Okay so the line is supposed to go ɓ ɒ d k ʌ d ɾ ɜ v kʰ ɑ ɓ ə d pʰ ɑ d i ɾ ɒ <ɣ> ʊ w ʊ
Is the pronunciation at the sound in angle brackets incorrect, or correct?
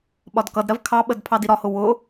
incorrect